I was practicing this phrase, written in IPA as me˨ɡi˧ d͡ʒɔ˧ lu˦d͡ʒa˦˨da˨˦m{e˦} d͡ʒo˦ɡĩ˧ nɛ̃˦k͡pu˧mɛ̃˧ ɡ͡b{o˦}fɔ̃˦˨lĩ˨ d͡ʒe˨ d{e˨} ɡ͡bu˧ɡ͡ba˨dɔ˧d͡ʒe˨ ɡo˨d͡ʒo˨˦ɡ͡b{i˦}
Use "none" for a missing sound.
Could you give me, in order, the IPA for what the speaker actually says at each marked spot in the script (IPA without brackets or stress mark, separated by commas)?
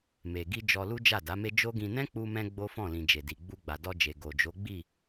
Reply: e˦, o˦, i˨, i˦˨